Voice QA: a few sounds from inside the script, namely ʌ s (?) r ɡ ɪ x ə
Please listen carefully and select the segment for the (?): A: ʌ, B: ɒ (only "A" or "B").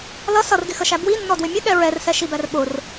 A